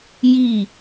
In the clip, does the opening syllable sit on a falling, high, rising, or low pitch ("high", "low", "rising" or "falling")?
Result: falling